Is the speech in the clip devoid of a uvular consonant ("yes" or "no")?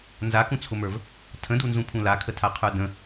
no